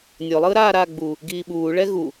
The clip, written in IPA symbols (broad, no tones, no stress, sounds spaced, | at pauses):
nʲ o lˠ ɯː ɾ aː ɾ aː ɡ͡b uː | ɡ iː ɓ uː ɭ ɛ ɣ u